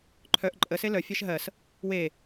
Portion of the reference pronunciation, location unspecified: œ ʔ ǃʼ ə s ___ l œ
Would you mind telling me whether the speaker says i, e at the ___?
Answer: e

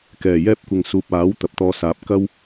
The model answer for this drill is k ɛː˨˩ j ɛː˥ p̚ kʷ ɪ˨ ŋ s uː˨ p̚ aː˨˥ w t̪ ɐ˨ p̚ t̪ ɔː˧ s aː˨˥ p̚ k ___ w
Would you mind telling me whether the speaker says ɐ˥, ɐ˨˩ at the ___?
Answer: ɐ˥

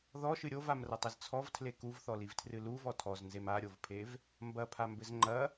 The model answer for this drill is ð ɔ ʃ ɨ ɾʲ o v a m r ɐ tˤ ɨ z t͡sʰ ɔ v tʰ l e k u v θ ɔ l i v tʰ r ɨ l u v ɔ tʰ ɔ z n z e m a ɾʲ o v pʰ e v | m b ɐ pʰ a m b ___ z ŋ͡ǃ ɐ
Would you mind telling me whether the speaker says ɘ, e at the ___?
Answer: ɘ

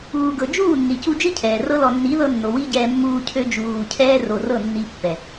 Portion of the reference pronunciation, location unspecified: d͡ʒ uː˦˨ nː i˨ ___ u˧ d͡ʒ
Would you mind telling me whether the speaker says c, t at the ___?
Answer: c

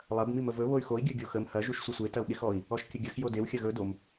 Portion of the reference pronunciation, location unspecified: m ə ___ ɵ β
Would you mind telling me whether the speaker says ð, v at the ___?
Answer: v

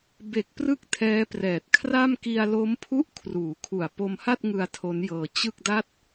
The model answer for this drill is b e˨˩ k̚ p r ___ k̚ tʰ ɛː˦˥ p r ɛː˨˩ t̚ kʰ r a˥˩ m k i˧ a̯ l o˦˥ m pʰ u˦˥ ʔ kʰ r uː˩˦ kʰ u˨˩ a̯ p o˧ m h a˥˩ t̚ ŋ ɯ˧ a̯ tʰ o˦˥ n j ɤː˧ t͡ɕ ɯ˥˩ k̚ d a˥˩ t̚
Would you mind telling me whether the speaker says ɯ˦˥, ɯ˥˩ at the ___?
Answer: ɯ˦˥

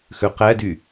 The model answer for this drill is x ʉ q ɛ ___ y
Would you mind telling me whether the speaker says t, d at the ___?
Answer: d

